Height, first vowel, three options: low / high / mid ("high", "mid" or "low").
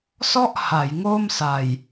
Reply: mid